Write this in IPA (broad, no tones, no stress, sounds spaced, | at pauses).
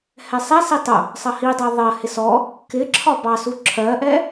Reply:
h ɛ sˤ ɛ s i tˤ ʊ | sˤ ʌ h i dˤ ɜ ðˤ ɜ h ɪ s ɔ | k ɪː ǁʰ ɒ b ɑ s u ǁʰ ɜ ʔ ɛ